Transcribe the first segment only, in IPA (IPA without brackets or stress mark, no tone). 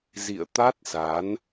z